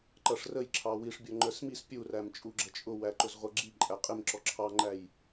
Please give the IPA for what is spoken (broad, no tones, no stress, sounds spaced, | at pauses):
ǃ ʌ ʂ r ə j ǁʰ ɑ w i ʂ bʲ ɔ ŋ͡ǃ ə˞ s m i s pʲ u r æ m t͡ʃʼ u ɡ͡ǁ ə t͡ʃʼ ʊ w æ ǃ ʊ z ʁʷ ʌ ɡ͡ǁ i ǃʼ æ qʼ ɪ m ǁ ɔ ǁʰ ɑ ŋ͡ǃ æ j